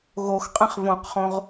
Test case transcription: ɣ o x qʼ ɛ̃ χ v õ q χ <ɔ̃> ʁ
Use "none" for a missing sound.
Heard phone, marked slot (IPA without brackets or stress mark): õ